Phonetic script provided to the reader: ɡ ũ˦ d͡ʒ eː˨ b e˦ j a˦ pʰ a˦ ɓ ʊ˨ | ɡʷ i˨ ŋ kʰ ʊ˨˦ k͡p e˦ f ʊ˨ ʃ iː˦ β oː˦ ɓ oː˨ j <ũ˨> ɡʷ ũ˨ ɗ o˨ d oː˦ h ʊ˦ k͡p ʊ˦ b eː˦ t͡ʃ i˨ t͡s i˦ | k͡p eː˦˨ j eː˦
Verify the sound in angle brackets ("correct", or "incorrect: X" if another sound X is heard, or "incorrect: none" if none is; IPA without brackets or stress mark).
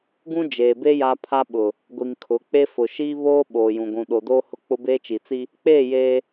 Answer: correct